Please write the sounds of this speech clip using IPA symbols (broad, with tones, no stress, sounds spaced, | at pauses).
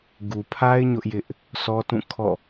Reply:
ɡ u˨ pʰ a˦ ɪ̯ ɲ ʊ˦ ʔ j ɪ˦ ʔ | sʰ ɔ˦ t ũ˦˨ kʰ ɔ̰˦˨